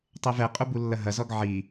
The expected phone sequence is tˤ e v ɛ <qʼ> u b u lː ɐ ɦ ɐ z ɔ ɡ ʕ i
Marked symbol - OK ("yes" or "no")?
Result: yes